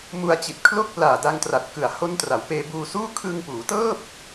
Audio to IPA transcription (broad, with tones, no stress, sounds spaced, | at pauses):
m u˧ a̯ t͡ɕ i˨˩ t̚ kʰ l o˥˩ k̚ p l aː˨˩ d a˧ ŋ t r a˨˩ t̚ k ɯ˨˩ a̯ h o˦˥ n t r a˩˦ w p eː˧ b uː˧ s uː˥˩ kʰ ɯ˧ ŋ p uː˩˦ t ɤː˥˩ p̚